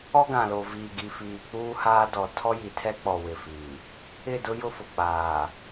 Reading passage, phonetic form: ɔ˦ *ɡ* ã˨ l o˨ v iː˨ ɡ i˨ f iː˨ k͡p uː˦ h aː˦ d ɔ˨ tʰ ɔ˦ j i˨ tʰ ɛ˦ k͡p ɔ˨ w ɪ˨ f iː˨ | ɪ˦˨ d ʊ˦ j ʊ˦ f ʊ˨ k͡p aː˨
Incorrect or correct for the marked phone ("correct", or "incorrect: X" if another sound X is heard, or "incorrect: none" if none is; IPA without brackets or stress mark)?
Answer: correct